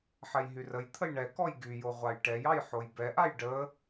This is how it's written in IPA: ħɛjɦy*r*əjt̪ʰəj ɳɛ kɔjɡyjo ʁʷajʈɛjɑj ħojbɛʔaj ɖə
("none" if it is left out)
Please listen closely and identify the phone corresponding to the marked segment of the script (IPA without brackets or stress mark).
r